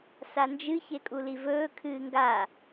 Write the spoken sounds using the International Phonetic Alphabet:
s a n d͡ʒ ɨ ç e kʼ u l i v ɵː kʰ ɨː ŋ ɡ a

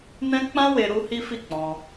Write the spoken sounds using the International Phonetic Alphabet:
n ɛ̃˦ k͡p ã˦ w e˧ ɾ u˦ h i˦ f i˦˨ k͡p ɔ̃˧

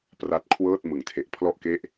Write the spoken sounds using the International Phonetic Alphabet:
p r a˦˥ t̚ kʰ w ɤː˥˩ t̚ m ɯ˩˦ ŋ tʰ e˨˩ ʔ pʰ l ɔ˥˩ ʔ k e˥˩ ʔ

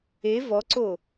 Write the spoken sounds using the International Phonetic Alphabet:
e v ɔ ǀ o

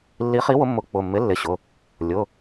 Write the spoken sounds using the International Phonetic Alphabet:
lː i˨˥ χ i˨˥ w ʊ˨˥ mː ʊ˨˥ k͡p ʊ˩˧˩ mː ɪ˨˥ lː ɪ˩˧˩ ɕ ʊ˩˧˩ | lʲ ʊ˩˧˩

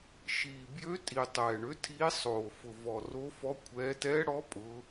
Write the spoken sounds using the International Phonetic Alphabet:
ʃ iː˨˩ b j ø˧˥ tʼ i˨˩ tˤ ɛː˨˩ ɳ ø˧˥ tʰ iː˧˥ sˤ oː˨˩ f ʊ˨˩ v ɔ˨˩ r o˧˥ f ɔ˧˥ kʷʰ ɛː˧˥ t ɛː˧˥ ɽ ɔ˧˥ pʼ ʊː˧˥

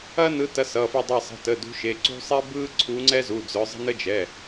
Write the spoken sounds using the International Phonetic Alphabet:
ɐ˦ n ɯ˨˦ t ɐ˨˦ s ʌ˩˧˩ f ɯ˧˩ dˤ ɐ˧˩ sˤ ə̤˩˧˩ t ə˩˧˩ d ṳ˨˦ ʃ e˩˧˩ ǀ ṳ˦ sˤ e˦ b ɯ˦ ǀʰ u˨˦ ŋ͡ǀ ɛ˦ z u˩˧˩ d͡z œ˨˦ zˤ ə̤˦ n ə˦ d͡ʒ ɛ˩˧˩

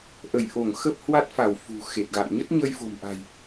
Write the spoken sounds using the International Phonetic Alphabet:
ʔ ə˧˩ j ʔ o˧˩ ŋ x ə˦˥ p̚ h w a˦˥ t̚ f a˧˩ w f ṳ˨˩ x e˨˩ t̚ ɣ a̰˧˨ n ɲ ə˦˥ t̚ ɲ ə˧ j f o̤˨˩ m ʔ a̤˨˩ j

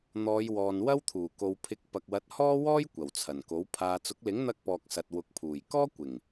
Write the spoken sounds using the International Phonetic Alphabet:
n̪ ɔː˨˧ j w ɔː˨ n w ɐ˥ w t̪ʰ uː˨˩ k o˨ w pʰ ɪ˨˥ k̚ p ɐ˨ k̚ w ɐ˨˥ t̚ h ɔː˥ w ɔː˥ j kʷ ɐ˨˩ w t͡sʰ ɐ˨˩ n k o˨˥ w pʰ aː˧ t͡s ʊ˨˥ k̚ l ɪ˨˥ ŋ n̪ ɐ˧ k̚ p ɔː˨ k̚ s ɐ˨ t̚ w ʊ˨˥ k̚ pʰ uː˨˩ j k ɔː˥ kʷ ɪ˨˩ ŋ

